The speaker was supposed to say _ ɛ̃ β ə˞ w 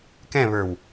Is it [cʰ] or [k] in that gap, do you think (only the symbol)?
k